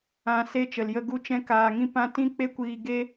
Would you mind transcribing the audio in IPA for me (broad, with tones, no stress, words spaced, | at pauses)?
ã˦ se˦ t͡ʃə˨ljə˧ ɡu˦˨t͡ʃɛ̃˦ kaː˧ŋĩ˦pã˦ tĩ˦k͡pe˦kʷiː˧ ɡe˦